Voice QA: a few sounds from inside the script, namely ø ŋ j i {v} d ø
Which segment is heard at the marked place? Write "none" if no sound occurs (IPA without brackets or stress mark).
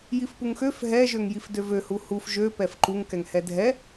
f